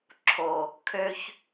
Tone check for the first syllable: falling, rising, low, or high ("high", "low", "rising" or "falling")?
low